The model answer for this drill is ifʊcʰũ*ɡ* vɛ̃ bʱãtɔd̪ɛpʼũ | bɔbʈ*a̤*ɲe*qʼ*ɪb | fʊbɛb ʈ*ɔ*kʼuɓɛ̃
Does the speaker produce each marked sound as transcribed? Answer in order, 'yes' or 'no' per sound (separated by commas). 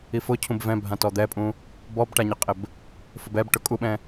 no, no, yes, no